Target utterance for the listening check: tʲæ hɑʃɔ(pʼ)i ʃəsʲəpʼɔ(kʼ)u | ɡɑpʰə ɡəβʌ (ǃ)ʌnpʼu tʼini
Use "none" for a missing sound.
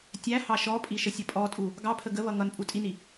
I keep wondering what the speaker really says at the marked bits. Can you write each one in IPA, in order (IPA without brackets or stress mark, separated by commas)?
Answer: pʼ, tʼ, ŋ